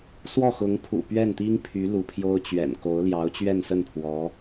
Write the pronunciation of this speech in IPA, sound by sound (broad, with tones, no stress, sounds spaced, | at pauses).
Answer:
s w ɔ˥˩ x ʊ˧˥ ŋ pʰ ṵ˨˩ p ɥ ɛ˥˩ n t̪ i˥ ŋ pʰ y˧˥ l u˧˥ pʰ j o˥ ʊ̯ t͡ɕ ɥ ɛ̰˨˩ n k o˧˥ ʊ̯ l j ɑ˧˥ ʊ̯ t͡ɕ ɥ ɛ˥˧ n s ə˥˩ n pʰ w ɔ˧˥